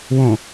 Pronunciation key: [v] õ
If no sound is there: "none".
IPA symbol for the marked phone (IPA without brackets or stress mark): w